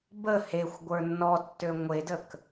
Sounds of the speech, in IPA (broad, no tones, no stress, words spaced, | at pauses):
bə hexʷ ɡʷə˞nːɔtːø ŋʷedək